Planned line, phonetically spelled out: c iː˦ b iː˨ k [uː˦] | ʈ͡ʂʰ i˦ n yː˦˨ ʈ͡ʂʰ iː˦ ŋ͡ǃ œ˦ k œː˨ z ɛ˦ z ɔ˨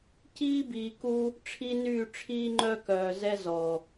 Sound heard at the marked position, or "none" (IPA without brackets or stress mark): u˦